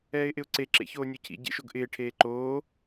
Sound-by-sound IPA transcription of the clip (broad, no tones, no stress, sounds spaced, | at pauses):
ɛː ɪ̯ ʔ ɪ ʊ̯ ǀ e ǁ ḛ ç oː nʲ o cʰ ḭ ɟ ḛ ʃ o ɡ ʔ ɪː ʈʰ eː ǃ oː